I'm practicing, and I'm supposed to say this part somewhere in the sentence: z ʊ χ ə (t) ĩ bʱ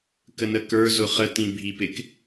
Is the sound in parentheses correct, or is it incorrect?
correct